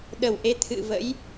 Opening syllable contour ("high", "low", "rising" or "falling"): low